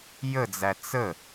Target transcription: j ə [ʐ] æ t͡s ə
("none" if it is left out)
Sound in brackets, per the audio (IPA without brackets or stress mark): d͡z